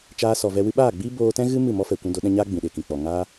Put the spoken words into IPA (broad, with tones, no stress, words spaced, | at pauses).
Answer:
t͡ʃaː˧sɔ˨ vɛ˧wɨ˦ ɓaː˦˨ɡ͡biː˦ boː˧tɛ̃˦ɣɨ˦ mɨ˦˨mɔ˦fɛ˨ kʷũ˧do˨˦ɗɛ̃˧ɲaː˦ ɡ͡bĩ˨ɗe˨kĩ˨k͡pɔ˨ ŋaː˦